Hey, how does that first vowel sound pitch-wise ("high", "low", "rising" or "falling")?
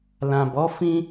low